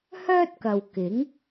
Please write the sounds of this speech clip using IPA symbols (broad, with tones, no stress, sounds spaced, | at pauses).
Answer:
h œː˥ t̚ k ɐ˨ w k ɪ˨˥ ŋ